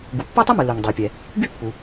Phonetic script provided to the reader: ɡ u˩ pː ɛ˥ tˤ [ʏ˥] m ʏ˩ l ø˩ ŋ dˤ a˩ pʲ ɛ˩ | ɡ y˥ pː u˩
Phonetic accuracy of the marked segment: correct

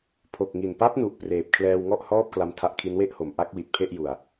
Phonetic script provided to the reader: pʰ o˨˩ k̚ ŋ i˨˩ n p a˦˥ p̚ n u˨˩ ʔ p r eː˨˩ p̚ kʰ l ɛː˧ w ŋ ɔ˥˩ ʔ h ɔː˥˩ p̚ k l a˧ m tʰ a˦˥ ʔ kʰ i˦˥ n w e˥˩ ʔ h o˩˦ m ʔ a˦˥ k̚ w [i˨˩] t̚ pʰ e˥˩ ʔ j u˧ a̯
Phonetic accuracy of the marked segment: correct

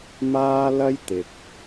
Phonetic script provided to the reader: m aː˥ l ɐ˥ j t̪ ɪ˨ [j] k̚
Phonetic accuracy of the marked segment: incorrect: none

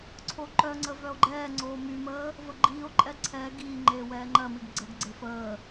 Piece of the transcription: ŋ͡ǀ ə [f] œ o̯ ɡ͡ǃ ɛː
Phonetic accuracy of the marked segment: incorrect: v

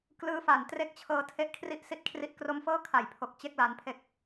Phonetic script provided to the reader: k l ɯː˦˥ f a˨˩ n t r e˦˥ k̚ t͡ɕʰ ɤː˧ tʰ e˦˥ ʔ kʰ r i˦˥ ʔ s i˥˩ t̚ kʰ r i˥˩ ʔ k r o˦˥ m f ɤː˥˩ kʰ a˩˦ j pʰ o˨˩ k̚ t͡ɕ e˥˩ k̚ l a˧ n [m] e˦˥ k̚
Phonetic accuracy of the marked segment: incorrect: pʰ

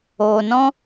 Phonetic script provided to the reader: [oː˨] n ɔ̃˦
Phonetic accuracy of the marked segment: correct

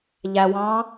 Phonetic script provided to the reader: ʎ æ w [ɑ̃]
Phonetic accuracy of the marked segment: correct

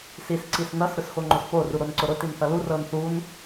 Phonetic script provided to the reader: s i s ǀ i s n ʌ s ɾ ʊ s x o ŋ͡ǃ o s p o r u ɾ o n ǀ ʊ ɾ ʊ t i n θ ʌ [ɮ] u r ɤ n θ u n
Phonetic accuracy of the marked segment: incorrect: l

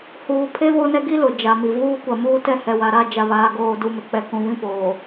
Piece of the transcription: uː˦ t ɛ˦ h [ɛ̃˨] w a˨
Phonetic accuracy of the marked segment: incorrect: ɛ˨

